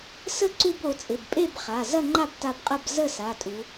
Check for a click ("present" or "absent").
present